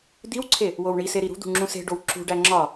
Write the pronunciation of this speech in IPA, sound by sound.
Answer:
d̪ i w ǀʰ e | w o w ɳ i s e ɾ i ɾ ṳ d̪ ṳ ŋ͡ǁ ũ s e̤ ɖ o w ǁ ṳ ɖ æ ŋ͡ǁ ɒ

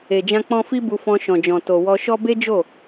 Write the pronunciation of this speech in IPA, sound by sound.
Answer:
e˨ d͡ʒ ã˧ k͡p ɔ̃˧ f i˦ b u˧ f ɔ̃˧ ʃ ɔ̃˨ d͡ʒ ɔ̃˨ t o˨ w ɔ˧ ʃ ɔ˦ b e˦ d͡ʒ o˦˨

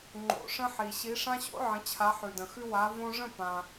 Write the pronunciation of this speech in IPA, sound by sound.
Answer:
ŋ͡ǃ o̰˨ ʂ ə̃˦ ħ i˨ ɕ i˨˦ ʂ ã˦ ɕ o̰˦ ʕ ə̃˨˦ t͡ɕʰ a˨˦ ħ ʉ˨ d ə̃˨ x ʉ˦ w a˨˦ v õ˦ ʐ ə̃˥˨ p ã˨

